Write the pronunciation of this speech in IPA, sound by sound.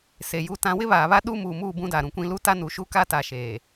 se˨ju˦tã˦ wɪ˦βaː˨βa˦ ɗuː˦muː˨muː˦˨ bũ˦da˨ɾũ˨kʷĩ˦ lu˦ta˦nuː˨ʃu˦ ka˦ta˨ ʃeː˨

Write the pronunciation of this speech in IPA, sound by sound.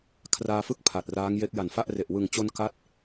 kʰraː˧fɯ˥˩k̚ pʰa˨˩t̚raː˦˥ŋje˦˥k̚ ja˨˩nfa˥˩ʔre˨˩ʔ wɯ˨˩ŋt͡ɕo˧n ka˦˥t̚

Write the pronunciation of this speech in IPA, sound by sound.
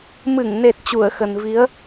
mɨ˧˩ŋne˨˩t̚ t͡ɕu˧˩ə̯xə˨˩nvi˨˦ə̯

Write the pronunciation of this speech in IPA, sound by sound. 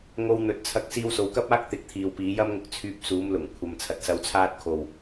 ŋo˧wn̪ɵ˨˥t̚t͡sʰɐ˧k̚ siː˧wso˨˧wkɐ˥p̚aː˥k̚ t̪ɪ˨˥k̚t̪ʰiː˨wpiː˨˧jɐ˥m ŋʊ˧k̚t͡sʰyː˧p̚suː˨˧mlʊ˨˩ŋ kʷʰɐ˨m t͡sʰɐ˨t̚sɐ˧wt͡sʰaː˥t̚ kʰo˨w

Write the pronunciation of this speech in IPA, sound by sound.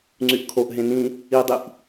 ŋ͡ǀyʔkʰoʔ ɦẽnĩ | idˤiʔ

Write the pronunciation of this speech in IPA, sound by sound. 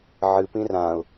ʕɨpĩ rãʊ̯

